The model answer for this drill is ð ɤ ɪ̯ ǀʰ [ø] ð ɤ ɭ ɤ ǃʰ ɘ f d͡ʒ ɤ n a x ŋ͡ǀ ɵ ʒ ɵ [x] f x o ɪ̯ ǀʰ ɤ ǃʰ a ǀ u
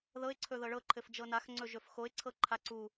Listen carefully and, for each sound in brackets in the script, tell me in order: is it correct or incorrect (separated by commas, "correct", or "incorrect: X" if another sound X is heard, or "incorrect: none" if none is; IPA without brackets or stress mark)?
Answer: incorrect: ɵ, incorrect: none